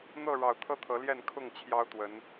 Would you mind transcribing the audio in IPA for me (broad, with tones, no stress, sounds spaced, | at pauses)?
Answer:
n̪ ɤ˥˨ ɻ ɑ˨˩ ʊ̯ t̪ʰ ɤ˦ t̪ʰ ɤ˨˦ l j ɛ˥˨ n kʰ ʊ˥˨ ŋ t͡ɕʰ j ɑ˦ ʊ̯ t̪ w ə˨˦ n